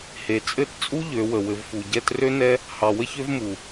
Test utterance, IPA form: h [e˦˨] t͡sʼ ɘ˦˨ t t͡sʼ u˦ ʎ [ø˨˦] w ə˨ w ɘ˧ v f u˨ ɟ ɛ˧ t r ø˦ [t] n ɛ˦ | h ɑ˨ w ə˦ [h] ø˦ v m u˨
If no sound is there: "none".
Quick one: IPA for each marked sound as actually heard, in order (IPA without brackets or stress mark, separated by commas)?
e˨, ø˨˦, none, ç